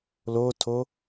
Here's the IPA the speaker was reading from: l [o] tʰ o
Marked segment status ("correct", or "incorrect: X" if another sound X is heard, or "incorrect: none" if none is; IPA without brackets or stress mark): correct